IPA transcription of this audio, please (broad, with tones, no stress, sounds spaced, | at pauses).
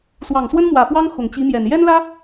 s w ɑ˨˩ ŋ s w ə˥ n m w ä˨˩ f w ɑ˥ ŋ x ʊ˨˩ ŋ t͡ɕ i˧˥ m j ɛ˨˩ n j ɛ˥ n l ä˥